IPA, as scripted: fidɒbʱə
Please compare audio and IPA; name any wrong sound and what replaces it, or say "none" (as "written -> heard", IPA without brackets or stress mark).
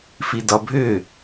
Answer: ə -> ʏ